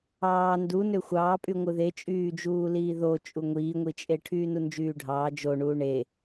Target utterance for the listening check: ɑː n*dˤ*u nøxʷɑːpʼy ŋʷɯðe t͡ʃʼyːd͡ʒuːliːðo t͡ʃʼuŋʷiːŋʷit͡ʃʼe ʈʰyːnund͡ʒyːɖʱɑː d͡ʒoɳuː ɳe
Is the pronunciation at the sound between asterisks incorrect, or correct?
incorrect